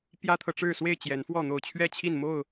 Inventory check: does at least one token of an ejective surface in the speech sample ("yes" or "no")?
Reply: no